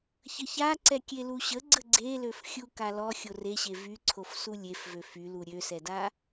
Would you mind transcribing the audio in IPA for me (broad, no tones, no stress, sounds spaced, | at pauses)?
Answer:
ç ə ç a ǀ ɛ kʲ e l u ɕ ə ɡ͡ǀ ə ɡ͡ǀ e l ø f xʲ u k a l ɔ xʲ o r e ɕ e v y ǀʰ o f s u lʲ e f v ø f y l u ɾʲ ø s ɛ d a